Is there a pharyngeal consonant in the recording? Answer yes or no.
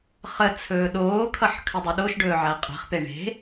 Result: yes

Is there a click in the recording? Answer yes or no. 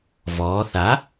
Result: no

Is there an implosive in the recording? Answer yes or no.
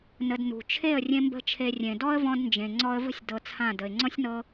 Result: no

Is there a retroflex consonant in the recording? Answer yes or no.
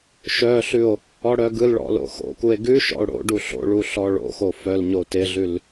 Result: yes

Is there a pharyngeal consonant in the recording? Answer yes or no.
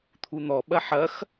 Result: yes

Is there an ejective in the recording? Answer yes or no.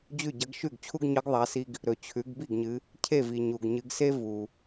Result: no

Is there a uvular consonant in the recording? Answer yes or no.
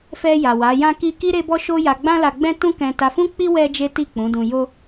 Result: no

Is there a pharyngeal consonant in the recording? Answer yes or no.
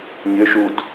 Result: no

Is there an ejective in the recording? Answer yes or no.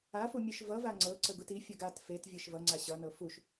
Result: no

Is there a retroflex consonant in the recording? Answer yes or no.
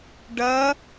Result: yes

